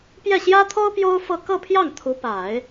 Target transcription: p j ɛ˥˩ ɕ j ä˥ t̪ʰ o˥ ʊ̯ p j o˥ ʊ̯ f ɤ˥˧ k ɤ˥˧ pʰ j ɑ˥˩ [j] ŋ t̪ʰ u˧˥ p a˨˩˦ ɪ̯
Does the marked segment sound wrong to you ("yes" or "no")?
yes